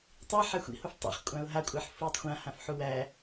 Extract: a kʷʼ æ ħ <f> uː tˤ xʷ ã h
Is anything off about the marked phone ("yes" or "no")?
no